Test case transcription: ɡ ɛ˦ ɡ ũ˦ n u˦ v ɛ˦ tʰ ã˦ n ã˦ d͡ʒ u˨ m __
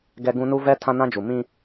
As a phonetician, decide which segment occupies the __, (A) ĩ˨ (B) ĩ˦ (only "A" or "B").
B